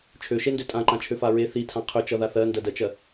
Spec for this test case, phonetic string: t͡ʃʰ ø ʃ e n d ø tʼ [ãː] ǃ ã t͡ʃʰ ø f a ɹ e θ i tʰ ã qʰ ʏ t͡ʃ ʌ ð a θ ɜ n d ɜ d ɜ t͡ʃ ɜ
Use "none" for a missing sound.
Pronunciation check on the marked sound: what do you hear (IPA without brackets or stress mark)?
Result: ã